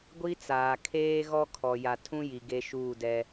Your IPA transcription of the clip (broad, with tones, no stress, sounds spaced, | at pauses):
ɡʷ i˦ t͡s aː˨ kʰ eː˦ ɣ ɔ˦ kʰ ɔ˨ j a˨ tʰ ũ˦ j i˨ ɡ e˦ ʃ uː˦˨ d ɛ˦